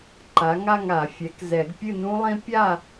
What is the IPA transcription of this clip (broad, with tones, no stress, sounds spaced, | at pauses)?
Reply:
ǃ a˩˥ ŋ a˥˨ ŋ a˨˩˦ fʲ ɛ˩˥ k z ɛ˨˩˦ ɡ pʲ ɨ˥˨ n ũ˦˥ lˠ ĩ˦˥ pʲ a˥˨